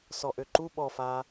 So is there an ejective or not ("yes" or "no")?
no